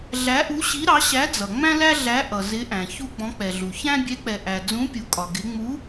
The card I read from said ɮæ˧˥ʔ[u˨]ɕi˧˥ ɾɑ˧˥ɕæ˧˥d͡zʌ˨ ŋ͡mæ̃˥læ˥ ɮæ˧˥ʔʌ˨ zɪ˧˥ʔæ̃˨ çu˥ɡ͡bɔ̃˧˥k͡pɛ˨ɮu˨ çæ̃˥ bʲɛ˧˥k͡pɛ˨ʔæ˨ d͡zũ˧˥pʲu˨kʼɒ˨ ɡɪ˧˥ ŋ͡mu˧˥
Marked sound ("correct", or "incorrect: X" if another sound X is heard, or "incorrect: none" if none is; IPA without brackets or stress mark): incorrect: u˧˥